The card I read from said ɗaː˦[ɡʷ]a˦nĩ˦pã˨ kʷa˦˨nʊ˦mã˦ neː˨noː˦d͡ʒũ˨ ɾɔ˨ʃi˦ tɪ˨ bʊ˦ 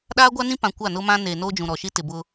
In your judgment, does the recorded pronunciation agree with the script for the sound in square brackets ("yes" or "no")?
yes